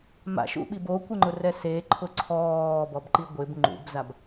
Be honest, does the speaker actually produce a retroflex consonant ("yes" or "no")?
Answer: no